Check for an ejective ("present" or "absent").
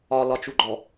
absent